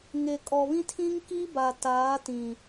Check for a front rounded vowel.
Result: absent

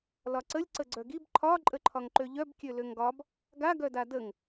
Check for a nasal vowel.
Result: absent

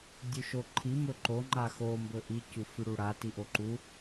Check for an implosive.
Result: absent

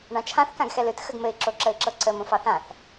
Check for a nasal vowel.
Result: present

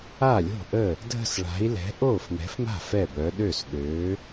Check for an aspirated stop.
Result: absent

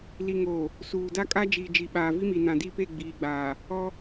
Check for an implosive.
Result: present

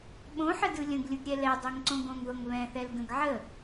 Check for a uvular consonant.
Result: absent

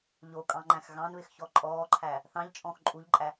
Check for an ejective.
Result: present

